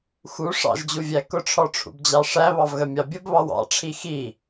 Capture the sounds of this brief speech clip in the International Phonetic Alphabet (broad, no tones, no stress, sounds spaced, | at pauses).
x u ʂ ɑ̰ ʒ d͡ʑ u vʲ æ k ʊ ʈ͡ʂʰ ɔ ʈ͡ʂʰ ṵ b d͡ʑ ɑ ʂ æ β ɑ v ɣ ə mʲ ɑ bʲ ə b β ɑ w ɑ̰ ʈ͡ʂʰ i x i